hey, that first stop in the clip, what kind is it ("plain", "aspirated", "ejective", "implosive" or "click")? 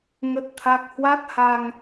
plain